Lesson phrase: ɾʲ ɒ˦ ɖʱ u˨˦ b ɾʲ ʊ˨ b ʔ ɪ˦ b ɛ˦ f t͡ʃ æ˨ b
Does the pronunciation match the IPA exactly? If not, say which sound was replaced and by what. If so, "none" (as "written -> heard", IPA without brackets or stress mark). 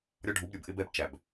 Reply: f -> b